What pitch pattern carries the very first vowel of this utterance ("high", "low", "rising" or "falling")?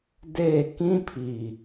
falling